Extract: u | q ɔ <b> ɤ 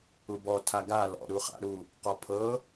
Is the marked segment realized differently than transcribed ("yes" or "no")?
yes